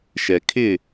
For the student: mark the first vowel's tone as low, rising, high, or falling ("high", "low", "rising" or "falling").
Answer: low